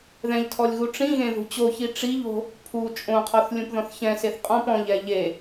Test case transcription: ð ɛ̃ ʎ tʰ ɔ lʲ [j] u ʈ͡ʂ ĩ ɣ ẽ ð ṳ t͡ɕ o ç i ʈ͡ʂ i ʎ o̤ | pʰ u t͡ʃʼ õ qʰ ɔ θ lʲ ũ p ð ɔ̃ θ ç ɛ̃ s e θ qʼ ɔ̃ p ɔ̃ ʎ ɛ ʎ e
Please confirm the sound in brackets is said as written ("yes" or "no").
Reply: no